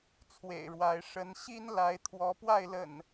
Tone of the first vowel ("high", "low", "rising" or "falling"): low